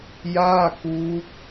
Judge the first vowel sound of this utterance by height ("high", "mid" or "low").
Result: low